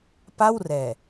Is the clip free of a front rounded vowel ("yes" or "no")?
yes